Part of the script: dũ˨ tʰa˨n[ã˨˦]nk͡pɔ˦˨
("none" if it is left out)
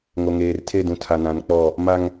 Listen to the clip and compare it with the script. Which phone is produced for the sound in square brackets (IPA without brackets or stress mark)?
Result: ã˨˦